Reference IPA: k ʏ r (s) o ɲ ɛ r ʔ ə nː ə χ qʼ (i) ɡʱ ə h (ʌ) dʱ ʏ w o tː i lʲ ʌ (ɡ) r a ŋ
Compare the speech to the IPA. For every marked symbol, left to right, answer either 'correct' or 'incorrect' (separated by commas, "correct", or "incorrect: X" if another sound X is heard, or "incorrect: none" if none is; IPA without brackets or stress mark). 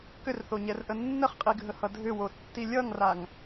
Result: incorrect: θ, correct, correct, incorrect: ŋ